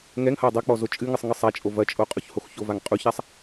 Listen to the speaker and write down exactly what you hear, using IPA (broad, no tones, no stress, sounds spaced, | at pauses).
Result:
ŋ ɛ ŋ h ɐ ɪ̯ dˤ ɛ k͡p ɔ z o t͡ʃʼ ɨ ŋ ɨ sˤ ŋ ɨ sˤ a t͡ʃʼ o v ɐ t͡ʃʼ o qʼ o ç h o x ç o v a ŋ qʼ u ç a sˤ